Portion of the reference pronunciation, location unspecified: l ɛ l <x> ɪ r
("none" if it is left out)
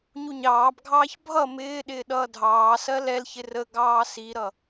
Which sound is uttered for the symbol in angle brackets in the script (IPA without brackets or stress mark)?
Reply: ç